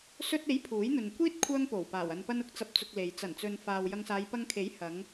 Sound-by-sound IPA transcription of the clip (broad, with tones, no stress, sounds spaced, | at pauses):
s ɵ˧ t̚ e˨˥ j pʰ uː˨˥ j n̪ ɵ˨ n kʷ iː˥ t̚ kʷʰ œː˥ ŋ p o˨˩ w p aː˨˩ w ɐ˨ n p ɐ˧ n ʊ˥ k̚ t͡s ɐ˨ p̚ t͡s ʊ˨ k̚ l e˨ j t͡s ɐ˨˩ n t͡s ɵ˨ n f aː˨ w j ɐ˧ ŋ s aː˨˧ j p ɐ˧ ŋ kʰ e˨˥ j h ɐ˨˧ ŋ